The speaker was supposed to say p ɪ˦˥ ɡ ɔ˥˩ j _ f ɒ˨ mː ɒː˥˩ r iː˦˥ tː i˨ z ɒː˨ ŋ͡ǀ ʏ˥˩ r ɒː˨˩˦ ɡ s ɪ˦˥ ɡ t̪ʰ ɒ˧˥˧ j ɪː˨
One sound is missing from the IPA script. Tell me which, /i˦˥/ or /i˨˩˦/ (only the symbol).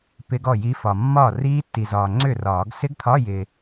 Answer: i˦˥